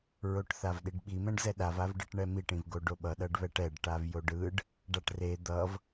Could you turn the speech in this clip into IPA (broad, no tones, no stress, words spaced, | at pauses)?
ɹoʈθavɗiɖɓi mɛ̃ɖzɛɗav avɖɯʈɳɛmiʈ ĩvɡoɖoɓʌ ɗʌɖβɛʈɛɖ ʈavjoɖɯɖ | ɖaʈre d̪ʌv